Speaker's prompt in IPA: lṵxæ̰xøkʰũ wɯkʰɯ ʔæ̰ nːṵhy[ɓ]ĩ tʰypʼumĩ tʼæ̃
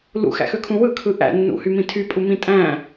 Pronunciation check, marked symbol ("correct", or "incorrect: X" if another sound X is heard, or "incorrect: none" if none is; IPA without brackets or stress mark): incorrect: m